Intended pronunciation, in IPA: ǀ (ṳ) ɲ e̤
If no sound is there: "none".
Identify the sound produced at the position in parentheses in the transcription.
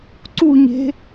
u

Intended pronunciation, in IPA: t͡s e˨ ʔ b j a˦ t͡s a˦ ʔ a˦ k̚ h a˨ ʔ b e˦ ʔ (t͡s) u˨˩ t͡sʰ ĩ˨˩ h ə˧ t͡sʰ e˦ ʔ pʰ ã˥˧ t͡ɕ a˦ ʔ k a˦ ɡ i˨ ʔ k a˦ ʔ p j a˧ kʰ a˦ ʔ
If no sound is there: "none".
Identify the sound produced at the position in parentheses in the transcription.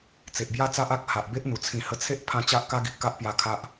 n̪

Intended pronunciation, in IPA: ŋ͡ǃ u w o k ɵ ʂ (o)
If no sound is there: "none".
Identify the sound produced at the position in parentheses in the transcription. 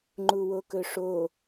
o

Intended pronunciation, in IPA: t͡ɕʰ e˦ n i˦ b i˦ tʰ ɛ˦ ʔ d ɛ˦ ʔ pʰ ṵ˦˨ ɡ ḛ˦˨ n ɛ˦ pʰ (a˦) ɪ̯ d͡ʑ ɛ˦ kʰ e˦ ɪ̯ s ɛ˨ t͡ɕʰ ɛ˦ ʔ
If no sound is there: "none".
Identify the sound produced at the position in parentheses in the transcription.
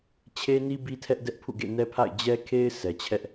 a̰˦˨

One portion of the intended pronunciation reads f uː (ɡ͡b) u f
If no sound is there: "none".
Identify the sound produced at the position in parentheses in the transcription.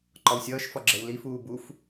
b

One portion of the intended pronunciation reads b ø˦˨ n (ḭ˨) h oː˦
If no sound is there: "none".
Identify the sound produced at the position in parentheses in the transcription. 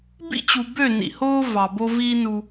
ḭ˨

